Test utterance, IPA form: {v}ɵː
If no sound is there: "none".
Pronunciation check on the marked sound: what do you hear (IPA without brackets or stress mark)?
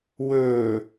w